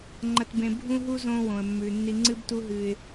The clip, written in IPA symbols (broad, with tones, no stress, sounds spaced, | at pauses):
ŋ͡ǃ ɐ˨ t b ẽ˨ bʱ ũ˦ ɦ u˦ z õ˦ w õ˨ ə̯ mː ʉ˨ nː i˦ ŋ͡ǀ ɨ˦ b t u˦ ɦ ɨ˦ ɪ̯